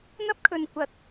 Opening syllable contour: high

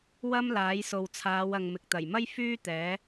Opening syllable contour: high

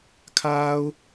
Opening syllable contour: high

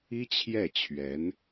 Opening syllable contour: high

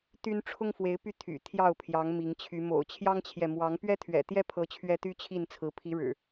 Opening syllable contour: high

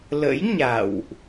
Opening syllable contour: rising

